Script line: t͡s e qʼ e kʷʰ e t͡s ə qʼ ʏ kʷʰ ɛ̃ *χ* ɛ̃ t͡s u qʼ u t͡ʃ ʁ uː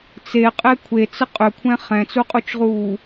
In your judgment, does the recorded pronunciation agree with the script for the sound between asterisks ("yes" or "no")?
yes